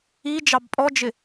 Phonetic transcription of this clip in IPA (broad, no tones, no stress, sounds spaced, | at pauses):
i d͡ʒ ɑ b pʼ ɔ d͡ʒ ɪ